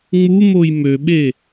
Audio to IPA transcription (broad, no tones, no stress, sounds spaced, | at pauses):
ŋ͡m u m o j m ø ɓ e